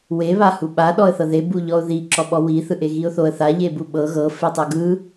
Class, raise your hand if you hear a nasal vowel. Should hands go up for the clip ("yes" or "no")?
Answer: no